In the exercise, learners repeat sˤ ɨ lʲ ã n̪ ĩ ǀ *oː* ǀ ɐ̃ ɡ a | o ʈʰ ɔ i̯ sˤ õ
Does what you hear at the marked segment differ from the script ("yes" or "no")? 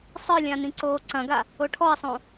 no